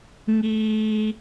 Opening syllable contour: high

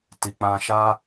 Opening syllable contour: low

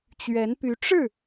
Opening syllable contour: rising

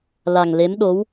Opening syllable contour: low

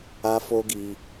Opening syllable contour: high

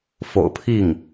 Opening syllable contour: low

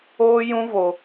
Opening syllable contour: high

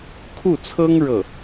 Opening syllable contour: falling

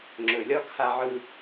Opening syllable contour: low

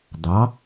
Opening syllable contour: rising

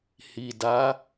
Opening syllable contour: low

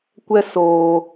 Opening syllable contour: high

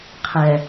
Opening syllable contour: low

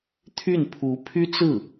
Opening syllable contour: falling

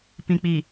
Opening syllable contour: low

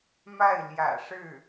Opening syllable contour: falling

